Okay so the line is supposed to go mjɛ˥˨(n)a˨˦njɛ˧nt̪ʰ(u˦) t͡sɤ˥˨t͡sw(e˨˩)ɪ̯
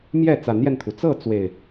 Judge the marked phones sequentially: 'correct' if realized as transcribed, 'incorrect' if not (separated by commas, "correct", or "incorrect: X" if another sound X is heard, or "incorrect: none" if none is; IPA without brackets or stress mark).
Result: incorrect: t͡s, incorrect: u˩, correct